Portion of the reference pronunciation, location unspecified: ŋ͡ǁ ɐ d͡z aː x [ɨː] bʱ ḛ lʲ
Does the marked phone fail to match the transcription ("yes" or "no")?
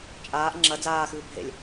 no